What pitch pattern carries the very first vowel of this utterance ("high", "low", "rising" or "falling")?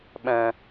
low